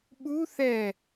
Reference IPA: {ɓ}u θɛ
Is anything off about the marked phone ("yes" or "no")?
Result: no